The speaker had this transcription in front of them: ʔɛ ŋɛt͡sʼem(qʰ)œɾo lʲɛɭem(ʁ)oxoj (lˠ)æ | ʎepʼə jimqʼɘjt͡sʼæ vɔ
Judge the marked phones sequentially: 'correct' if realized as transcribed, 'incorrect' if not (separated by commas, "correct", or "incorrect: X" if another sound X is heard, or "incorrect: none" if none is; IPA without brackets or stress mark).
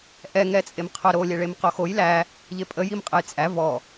correct, incorrect: q, incorrect: l